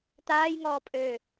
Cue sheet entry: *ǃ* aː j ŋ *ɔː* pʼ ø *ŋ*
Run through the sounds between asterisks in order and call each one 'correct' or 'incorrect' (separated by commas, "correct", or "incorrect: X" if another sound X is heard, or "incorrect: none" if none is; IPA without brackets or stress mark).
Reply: incorrect: t̪, correct, incorrect: none